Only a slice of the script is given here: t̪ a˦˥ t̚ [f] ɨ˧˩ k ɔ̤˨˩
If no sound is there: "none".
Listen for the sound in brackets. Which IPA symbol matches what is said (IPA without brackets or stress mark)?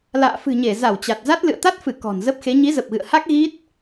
f